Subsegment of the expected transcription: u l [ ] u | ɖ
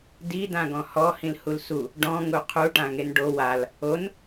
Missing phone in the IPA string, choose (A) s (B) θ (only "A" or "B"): A